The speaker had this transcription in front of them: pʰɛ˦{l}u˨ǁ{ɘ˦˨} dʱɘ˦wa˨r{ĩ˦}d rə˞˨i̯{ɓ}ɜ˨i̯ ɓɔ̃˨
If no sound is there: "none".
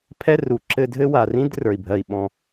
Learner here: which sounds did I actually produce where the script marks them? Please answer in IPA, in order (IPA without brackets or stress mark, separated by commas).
r, ɘ˧, ĩ˦, bʱ